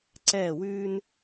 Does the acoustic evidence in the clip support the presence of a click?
yes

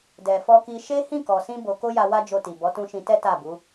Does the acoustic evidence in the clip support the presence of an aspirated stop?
no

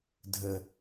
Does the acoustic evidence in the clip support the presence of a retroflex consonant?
no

